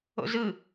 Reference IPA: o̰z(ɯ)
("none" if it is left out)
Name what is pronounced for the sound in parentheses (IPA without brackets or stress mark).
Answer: ɯ